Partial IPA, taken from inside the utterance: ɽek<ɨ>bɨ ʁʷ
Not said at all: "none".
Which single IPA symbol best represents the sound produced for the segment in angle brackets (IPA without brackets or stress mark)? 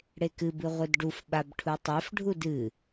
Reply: ɨ